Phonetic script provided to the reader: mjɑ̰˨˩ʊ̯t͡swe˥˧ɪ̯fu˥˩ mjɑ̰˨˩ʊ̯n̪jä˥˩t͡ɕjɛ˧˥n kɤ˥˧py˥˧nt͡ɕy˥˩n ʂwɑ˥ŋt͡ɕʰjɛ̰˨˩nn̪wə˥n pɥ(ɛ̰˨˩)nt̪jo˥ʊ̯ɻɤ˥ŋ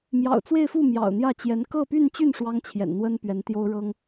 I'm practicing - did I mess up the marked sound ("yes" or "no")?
yes